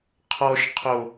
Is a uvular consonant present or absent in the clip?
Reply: present